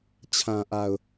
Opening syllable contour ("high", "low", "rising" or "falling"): low